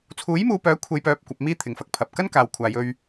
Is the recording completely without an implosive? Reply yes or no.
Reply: yes